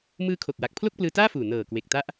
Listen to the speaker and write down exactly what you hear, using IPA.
m ɯː˧ kʰ o˨˩ k̚ w a˨˩ k̚ pʰ l o˥˩ k̚ p l ɯː˧ t aː˥˩ f uː˨˩ n ɤː˨˩ k w e˨˩ k̚ t a˦˥ ʔ

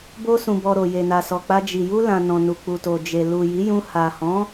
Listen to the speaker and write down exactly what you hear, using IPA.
b o˧ s ũ˨ b ɔ˨ ɾ o˨ j e˨ n a˨ s ɔ˨ k͡p a˧ d͡ʒ i˨ j u˧ l ã˨ n ɔ̃˨ n u˨ k͡p u˨ t o˨ d͡ʒ e˨ l u˨ j i˨˦ j ũ˧ h a˨ h ɔ̃˨˦

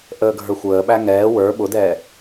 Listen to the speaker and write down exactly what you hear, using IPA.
ʔ əː ɡʱ ə˞ xʷ əː ɓ æ ŋ ɛː w ə˞ ɓ ʊ d ɛː

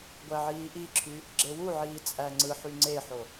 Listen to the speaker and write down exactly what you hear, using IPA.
ɡʷ æ ʕ iː ʔ i ǁʰ y | ɡ͡ǁ e w u ʕ iː t͡sʼ æ ŋ͡ǀ ɯ ħ y ŋ͡ǀ e ħ o

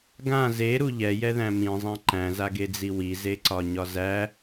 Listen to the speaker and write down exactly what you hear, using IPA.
ɡ ã z e ɾ u ʎ ɛ j ɛ ð æ̃ m ĩ zˤ æ̃ ǃ æ̃ z a ɡ e d͡z i w i z e ǀ ɒ ɲ ɒ z æ

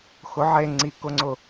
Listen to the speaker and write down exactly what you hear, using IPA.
x ʊ ʕ e ŋ͡ǀ i k ʊ ŋ͡ǀ ʊ

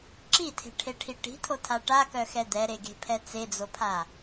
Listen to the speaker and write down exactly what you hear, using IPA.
ǁ i tʰ e̤ ʈʰ e ʈʰ i ʈ i̤ tʰ o tʰ a ʈ a k œ x ɛ d̪ ɛ ɾ e ɡ e̤ pʰ ɛ t͡s e d͡z o pʰ a

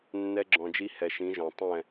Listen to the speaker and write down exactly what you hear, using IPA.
nː ɛ˧ ɡ͡ǁ ɔ̃˨ d͡ʒ i˧ h ɛ˨ ʃ ĩ˨˦ ʒ ɔ̃˨ tˤ ɛ̃˦˨

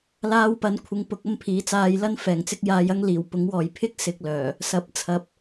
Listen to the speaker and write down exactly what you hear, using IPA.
l aː˧ w p ɐ˨˥ n kʷʰ ɪ˧ ŋ p ʊ˨˥ k̚ ɐ˥ m pʰ iː˨˥ t͡s aː˧ j l ɐ˥ n f ɛː˨˩ ŋ t͡s ɪ˥ k̚ j aː˧ j ɐ˥ ŋ l iː˨˩ w p ʊ˨˥ ŋ w ɔː˨ j pʰ ɪ˥ k̚ s ɪ˧ k̚ l œː˨˩ | s ɐ˨˥ p̚ t͡sʰ ɐ˨˥ p̚

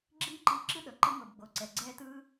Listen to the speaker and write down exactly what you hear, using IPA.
ɡ͡ǁ iː˦ ǃ iː˧ ǁ ɯ˦ ɗ ɤ˨ ǃ ɯ˦ ŋ ɤ˨ b ɡ͡b o˨ ǀ ɛ˨ ɡ͡ǀ ɛː˦ t ɯː˦

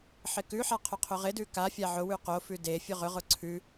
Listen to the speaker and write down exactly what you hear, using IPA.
ħ ɪ k ʉ ħ a qʰ ɵ qʰ ɵ ʁ ɪ d ʉ k a fʲ a ʕ ʊ w ʉ q o f ʉ d e fʲ ɵ ʁ ɵ ʁ ʊ ǀʰ ʉ

